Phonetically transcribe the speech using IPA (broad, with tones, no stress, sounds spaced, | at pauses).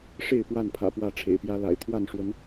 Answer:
ʂ e˥˨ ɪ̯ p w a˥˨ n pʰ ä̰˨˩ p w ä˥˨ ʈ͡ʂʰ ḛ˨˩ ɪ̯ p j ä˦ l a̰˨˩ ɪ̯ t̪ʰ w a˥˨ n ʂ w ə˨˦ n